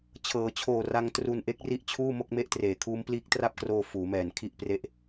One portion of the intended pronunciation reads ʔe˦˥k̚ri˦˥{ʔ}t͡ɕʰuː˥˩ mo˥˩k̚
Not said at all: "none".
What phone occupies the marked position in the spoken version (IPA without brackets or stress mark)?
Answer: ʔ